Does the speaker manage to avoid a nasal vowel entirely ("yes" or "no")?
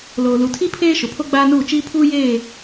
yes